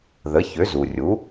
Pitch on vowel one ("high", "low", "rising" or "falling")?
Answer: rising